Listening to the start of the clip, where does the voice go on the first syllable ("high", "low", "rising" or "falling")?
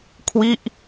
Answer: falling